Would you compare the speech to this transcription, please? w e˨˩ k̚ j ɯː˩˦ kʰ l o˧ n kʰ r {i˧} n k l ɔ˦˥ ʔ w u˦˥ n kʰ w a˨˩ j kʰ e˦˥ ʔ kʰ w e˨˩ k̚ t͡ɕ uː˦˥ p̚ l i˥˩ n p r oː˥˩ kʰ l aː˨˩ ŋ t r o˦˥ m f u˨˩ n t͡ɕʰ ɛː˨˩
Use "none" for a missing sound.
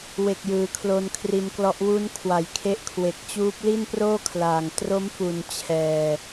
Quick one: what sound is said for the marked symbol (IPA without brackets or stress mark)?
i˧